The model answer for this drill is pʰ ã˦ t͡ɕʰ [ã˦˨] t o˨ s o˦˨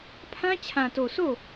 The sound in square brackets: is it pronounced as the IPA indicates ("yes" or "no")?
no